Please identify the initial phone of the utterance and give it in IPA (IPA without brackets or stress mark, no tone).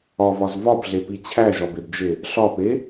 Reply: ɒ